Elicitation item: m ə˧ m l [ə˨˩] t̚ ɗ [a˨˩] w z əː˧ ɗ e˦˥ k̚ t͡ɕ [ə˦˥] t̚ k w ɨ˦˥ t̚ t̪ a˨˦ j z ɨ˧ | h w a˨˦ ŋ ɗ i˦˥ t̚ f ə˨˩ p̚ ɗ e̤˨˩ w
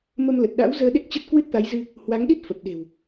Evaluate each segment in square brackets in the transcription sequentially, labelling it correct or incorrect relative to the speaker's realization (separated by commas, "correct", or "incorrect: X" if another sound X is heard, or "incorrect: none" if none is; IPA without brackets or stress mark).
correct, incorrect: a̰˧˥, correct